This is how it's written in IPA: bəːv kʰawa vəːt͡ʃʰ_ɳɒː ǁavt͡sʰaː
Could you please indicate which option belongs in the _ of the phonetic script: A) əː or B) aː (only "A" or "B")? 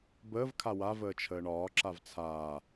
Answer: A